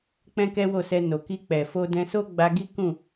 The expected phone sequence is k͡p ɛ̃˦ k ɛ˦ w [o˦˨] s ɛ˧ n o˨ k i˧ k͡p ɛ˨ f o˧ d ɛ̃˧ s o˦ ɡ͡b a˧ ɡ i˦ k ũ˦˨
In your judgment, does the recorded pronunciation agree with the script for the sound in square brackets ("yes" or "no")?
yes